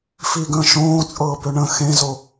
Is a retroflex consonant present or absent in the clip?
present